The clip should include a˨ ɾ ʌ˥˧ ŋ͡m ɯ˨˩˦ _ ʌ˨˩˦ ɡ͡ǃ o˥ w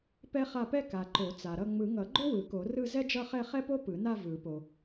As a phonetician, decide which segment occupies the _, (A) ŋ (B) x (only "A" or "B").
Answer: A